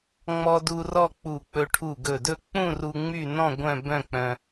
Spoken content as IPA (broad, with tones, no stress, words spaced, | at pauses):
ŋ͡mɔ˧du˧ rɔ˥˧k͡pu˧˩k͡pɵ˧ ʈʰu˧˩ɡɵ˧˩dɵ˥˧ k͡pũ˥˧ru˧ ŋ͡my˥˧nɔ̃˥˧ ɡʷœ̃˥˧ bœ̃˥˧k͡pœ̃˧